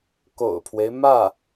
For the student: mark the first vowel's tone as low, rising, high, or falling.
low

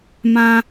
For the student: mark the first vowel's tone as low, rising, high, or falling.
high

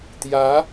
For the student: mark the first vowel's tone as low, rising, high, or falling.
rising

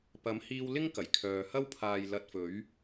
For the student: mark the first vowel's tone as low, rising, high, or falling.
rising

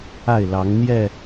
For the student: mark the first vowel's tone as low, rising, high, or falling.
falling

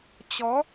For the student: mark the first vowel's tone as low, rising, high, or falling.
rising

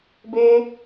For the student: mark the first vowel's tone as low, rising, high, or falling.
high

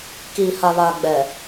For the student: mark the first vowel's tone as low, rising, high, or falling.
low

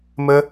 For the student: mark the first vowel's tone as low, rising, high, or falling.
high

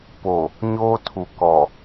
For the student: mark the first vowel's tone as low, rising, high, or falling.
low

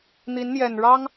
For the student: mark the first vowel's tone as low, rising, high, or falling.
rising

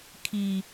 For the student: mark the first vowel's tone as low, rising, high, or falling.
low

